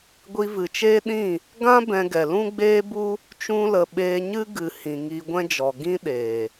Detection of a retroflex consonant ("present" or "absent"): absent